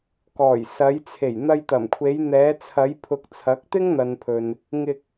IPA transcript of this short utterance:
k ɔː˨˩ j s ɐ˨˧ j t͡sʰ e˨˩ j n̪ ɐ˧ j t̪ ɐ˨˩ m kʷʰ e˨˧ j n̪ ɛː˨˧ t͡sʰ ɐ˨˧ j pʰ ʊ˨ k̚ t͡sʰ ɐ˨˥ k̚ t̪ ɪ˥ ŋ n̪ ɐ˨ n pʰ ɵ˨ n | ŋ ɪ˧ k̚

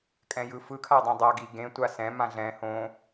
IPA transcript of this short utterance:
kʼ ɛ̃ j ɯ f ɯ kʰ a dˤ ẽ dˤ a ɡ i ɡ ẽ tʷ a s ɛ̃ m ã ɮ ɛ̃ h õ

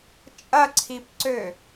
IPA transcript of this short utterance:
t͡ʃʼ ɐ ǀʰ i p ǀ ø

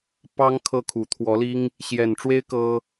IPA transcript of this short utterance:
p ɑ˥ ŋ kʰ ɤ˥˩ kʰ u˨˩ t̪ʰ w ɔ˧˥ l i˥ ŋ | ɕ j ɛ˨˩ n ʈ͡ʂ w e˥ ɪ̯ k ɤ˥

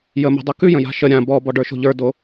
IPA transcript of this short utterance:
j ə m o̤ dˤ o k ʉ j ə̃ j a̤ ʃ ə ɾʲ ã b ɔ b ɔ ɖ ə˞ ʃ o̤ ʎ ə˞ d o

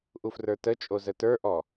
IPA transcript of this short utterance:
ʔ u f r ə˞ t ə t͡ʃʼ o z ə t ə˞ ʔ ɔ

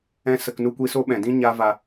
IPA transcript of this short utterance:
ɛ̃˦ s ə˧ k n u˦ kʷ i˦ s o˦ ɓ ɛ̃˨ d ĩ˦ ɲ a˦ v a˧

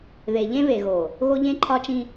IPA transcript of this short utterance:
ð e˨ ʎ ẽ˦ β e˨ ɣ o˨ | ɣ o˦ ʎ ẽ˦ ǃʰ ɒ˦ t͡ʃ ĩ˦

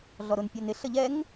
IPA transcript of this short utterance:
ɮ ɔ ɾ ʊ n pʲ ɑ n ɪ ɬ ə ʎ ɛ ŋ

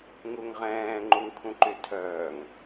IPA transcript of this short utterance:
ŋ u ŋ ʁ ɛ̃ː ŋ͡ǃ u ŋ kʰ ũ ǃ y tʰ œː ŋ

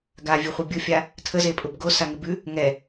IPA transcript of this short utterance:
ɡ a vʲ ʉ χʷ ɪ bʲ ʊ fʲ a | tʰ ə z e pʼ ʊ b ɡ o s a ŋ ɪ b ʉ | ŋ ɛ

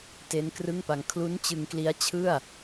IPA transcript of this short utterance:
t e˦˥ n k r ɯ˥˩ ŋ p a˧ ŋ kʰ l u˦˥ n t͡ɕ ɯ˧ ŋ k l i˦˥ a̯ t͡ɕʰ ɯ˥˩ a̯

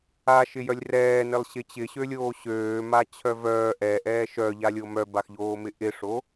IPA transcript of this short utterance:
a ʃ ɪ j œ lʲ r ɛː n ɪ lˠ ɕ ɪ t͡ɕ ɪ ɕ ø lʲ oː ɕ øː m a t͡ɕʰ œ v œː ʔ ɛ ʔ ɛː ʃ œ ʎ a lʲ o m œ b a x ʎ oː m ɪ ʔ ɪ ʂ o

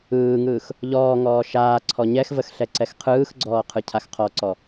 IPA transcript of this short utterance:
ɯː ŋ ɯː x | ʎ ɔː ŋ ɔː ʃ aː ǀʰ ɔ ɲ ɛ x v ə x ɬ ɛ ǀ ɛ x qʰ ɯː x ɡ͡ǀ ɔː qʰ ɯ cʰ a x qʰ ɔ ǀ ɔ

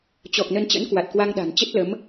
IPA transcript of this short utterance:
t͡ɕ ɔ˨˩ k̚ n ə˧ n t͡ɕ ə̰˧˥ n k w a˨˩ t̚ k w a˧ ŋ ɗ a̤˨˩ n t͡ɕ ə˦˥ t̚ l ə˨˦ m

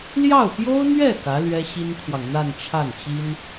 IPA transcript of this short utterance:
l j ɑ˥˩ ʊ̯ p j o˥ ʊ̯ n̪ ɥ ɛ˥˩ k ä˧˥ l ɥ ɛ˥ ɕ i˥ n kʰ w ɑ˨ ŋ n̪ a˥˧ n ʈ͡ʂʰ a˥˩ n t͡ɕ i˥ n

